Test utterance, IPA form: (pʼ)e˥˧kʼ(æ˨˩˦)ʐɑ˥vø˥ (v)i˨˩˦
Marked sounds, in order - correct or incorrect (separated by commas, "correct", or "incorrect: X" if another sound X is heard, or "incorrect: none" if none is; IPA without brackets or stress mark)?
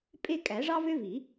correct, correct, correct